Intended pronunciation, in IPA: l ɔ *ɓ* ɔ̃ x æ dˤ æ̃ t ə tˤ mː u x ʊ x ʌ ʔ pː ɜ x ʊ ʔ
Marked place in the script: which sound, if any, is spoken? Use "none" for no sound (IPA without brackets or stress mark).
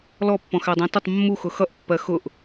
pː